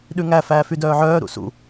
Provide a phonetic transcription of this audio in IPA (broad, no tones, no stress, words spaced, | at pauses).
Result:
ɗʉŋæ fæːfydœːʕœː ɾṵsṵ